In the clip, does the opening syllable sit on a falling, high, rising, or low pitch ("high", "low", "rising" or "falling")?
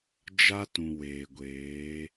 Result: high